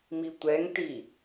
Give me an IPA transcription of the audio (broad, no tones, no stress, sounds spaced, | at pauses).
m i tʷ ɛ ŋ t i